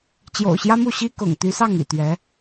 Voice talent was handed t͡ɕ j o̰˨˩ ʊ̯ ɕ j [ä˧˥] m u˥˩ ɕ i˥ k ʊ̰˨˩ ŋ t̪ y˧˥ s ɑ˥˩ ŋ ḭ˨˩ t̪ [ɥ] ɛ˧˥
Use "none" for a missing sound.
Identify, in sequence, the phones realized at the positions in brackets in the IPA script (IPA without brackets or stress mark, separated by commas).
ä˥, ɥ